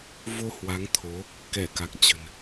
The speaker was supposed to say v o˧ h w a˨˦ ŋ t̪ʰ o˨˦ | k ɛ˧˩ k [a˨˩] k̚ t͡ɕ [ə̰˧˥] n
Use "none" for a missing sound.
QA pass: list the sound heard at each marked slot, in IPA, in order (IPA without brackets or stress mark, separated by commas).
a˨˩, ə̤˨˩